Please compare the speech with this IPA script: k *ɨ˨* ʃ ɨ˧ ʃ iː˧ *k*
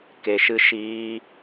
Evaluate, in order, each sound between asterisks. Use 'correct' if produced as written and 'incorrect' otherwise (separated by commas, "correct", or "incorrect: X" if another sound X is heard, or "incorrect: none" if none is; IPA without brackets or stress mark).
incorrect: e˨, incorrect: none